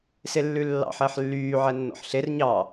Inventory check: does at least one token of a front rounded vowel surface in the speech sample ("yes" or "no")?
yes